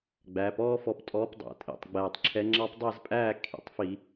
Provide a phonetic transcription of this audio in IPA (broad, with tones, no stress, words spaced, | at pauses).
ɡ͡bæː˩˧pɔː˦fɔ˨˥ptʼɔː˨˥p dˤæ̰˨˩tʼḭ˨˩tˤ ɡ͡bɛː˨˩tˤǁʰɛ˨˥ ŋ͡ǁɑ˦pdˤæ˥˨zpʼæː˥˨ kʰḭ˨˩tˤfi˧˩˧